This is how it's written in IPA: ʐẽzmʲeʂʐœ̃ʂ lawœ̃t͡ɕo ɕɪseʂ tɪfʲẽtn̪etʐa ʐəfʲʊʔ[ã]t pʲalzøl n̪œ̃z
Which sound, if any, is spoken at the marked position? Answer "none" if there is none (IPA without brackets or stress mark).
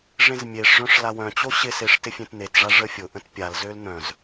ə̃